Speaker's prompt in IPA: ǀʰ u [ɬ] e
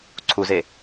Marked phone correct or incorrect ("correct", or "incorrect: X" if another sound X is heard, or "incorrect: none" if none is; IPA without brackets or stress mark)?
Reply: incorrect: z